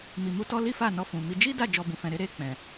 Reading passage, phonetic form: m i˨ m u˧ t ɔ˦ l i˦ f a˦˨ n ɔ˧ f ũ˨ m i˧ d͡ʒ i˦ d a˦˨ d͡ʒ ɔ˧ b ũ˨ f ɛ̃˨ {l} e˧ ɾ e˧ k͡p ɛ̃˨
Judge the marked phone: incorrect: ɾ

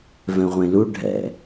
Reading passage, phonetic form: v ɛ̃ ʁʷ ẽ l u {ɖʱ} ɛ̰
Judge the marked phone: correct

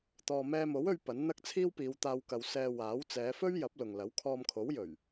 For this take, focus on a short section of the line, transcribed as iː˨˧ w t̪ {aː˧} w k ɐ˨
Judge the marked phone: correct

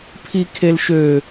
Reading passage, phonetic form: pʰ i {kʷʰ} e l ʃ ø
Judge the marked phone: incorrect: kʰ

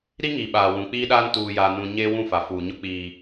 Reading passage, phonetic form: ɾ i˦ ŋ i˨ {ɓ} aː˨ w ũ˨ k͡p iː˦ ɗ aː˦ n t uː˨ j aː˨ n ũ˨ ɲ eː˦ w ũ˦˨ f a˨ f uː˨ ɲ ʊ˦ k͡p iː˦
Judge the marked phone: correct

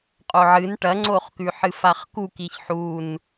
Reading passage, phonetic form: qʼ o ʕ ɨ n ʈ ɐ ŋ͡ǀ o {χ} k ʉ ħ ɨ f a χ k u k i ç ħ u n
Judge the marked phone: correct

